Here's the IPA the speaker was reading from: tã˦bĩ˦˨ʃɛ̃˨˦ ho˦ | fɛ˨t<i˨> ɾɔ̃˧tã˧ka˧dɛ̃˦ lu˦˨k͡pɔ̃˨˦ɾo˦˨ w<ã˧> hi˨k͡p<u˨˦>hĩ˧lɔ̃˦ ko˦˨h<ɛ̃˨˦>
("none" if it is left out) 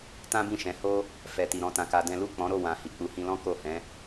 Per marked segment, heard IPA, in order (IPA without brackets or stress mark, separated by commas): i˨, ã˨, u˨˦, ɛ̃˨˦